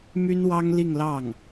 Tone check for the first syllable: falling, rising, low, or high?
high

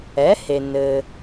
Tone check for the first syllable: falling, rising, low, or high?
rising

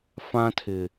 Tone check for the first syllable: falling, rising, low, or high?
high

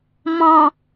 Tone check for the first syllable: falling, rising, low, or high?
low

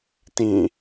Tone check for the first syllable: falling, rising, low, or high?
falling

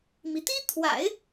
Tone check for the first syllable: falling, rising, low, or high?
rising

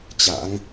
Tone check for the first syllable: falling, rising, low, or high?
rising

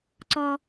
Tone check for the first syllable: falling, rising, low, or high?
low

